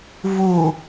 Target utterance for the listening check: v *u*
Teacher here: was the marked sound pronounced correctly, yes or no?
yes